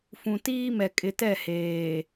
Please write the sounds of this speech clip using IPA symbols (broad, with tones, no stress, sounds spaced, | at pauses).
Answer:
f ũ˨ t iː˦ m ɛ˨ kʼ ɪ˨ t ɛ˦˨ h eː˨